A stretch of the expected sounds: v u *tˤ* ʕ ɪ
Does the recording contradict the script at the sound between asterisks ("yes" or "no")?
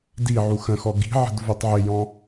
no